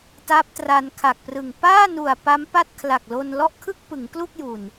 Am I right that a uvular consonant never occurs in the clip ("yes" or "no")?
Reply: yes